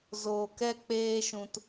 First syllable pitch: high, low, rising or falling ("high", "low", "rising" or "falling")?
low